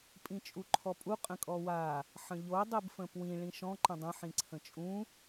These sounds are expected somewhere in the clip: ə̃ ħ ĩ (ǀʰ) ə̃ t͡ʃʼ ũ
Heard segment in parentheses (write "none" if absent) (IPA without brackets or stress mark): ǀʰ